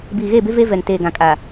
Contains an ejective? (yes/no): yes